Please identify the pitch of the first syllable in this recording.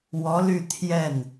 rising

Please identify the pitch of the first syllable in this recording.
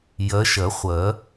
rising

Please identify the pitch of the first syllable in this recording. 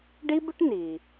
high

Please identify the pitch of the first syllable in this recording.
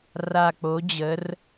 low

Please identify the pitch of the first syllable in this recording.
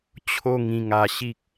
high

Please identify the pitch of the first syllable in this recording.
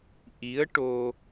rising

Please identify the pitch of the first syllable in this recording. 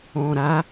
low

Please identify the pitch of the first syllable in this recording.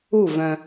falling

